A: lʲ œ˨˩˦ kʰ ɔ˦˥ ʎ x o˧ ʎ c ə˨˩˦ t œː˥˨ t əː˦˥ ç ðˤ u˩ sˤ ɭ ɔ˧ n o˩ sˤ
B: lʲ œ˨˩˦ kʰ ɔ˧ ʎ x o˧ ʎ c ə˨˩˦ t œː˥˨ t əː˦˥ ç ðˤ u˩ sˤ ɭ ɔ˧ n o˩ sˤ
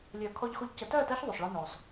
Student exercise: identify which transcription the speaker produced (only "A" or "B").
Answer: B